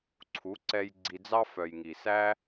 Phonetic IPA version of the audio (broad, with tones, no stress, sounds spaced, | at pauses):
ǀʰ u˨˦ ǀ ɛ˧ j ɡ͡ǀ i˧ d͡z ɑ˦ f œ˨ j ŋ i˨ s æ˦